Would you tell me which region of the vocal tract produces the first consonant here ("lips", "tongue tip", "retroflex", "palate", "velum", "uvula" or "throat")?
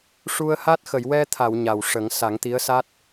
retroflex